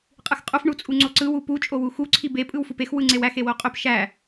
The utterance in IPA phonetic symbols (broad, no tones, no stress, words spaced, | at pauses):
qʼɯxqʼuf ɳut͡sʼuŋ͡ǀoǀɯ wupu t͡ʃʼowuxu ǀʰibe pʼɯwfupex wɯŋ͡ǀewæx ewoqʼøp ʃæ